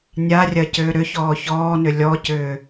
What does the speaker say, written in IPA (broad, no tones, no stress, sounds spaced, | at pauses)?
nʲ a rʲ ɐ c ʏː ɾ ʏ ç ɔː ç ɔː n ʏ lʲ ɔ c ʏː